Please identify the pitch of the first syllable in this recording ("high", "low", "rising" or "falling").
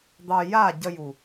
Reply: low